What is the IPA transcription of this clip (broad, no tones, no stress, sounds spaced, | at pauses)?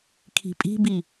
kʰ i̤ pʼ i̤ b i